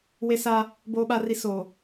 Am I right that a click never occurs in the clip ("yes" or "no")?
yes